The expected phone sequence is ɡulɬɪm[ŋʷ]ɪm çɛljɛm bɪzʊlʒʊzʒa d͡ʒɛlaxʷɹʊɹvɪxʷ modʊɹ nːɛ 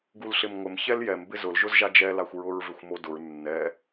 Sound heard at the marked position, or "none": ŋʷ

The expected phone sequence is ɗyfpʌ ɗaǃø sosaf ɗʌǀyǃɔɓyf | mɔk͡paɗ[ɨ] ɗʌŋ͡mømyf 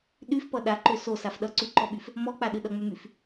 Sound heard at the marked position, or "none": ɨ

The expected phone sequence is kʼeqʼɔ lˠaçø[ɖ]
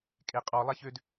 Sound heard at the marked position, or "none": d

